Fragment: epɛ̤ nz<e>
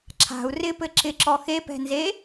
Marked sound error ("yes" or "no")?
no